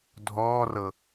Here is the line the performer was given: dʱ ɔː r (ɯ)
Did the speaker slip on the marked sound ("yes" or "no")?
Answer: yes